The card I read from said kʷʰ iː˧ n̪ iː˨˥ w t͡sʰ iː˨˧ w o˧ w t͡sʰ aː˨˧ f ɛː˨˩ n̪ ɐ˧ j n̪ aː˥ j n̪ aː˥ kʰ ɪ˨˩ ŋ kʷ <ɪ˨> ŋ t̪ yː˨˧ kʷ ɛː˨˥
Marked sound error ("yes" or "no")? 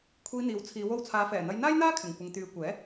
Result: no